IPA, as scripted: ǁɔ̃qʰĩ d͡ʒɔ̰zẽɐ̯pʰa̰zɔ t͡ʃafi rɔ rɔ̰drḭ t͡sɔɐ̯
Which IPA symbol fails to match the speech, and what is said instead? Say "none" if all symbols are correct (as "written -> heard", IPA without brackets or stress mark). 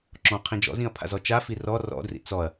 ẽ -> ĩ